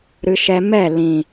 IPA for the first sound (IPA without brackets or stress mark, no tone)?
ɾ